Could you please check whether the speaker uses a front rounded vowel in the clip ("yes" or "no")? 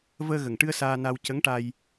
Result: no